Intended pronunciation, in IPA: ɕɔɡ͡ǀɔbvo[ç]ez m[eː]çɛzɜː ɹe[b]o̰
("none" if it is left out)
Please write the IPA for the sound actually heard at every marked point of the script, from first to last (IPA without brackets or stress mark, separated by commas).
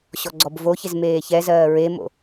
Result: ç, eː, m